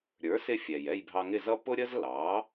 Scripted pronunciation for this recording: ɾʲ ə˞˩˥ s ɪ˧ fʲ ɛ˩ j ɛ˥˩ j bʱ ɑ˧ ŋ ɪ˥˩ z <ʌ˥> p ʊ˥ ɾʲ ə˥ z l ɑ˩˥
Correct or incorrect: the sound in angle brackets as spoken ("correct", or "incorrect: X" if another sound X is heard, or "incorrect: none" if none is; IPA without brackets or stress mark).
correct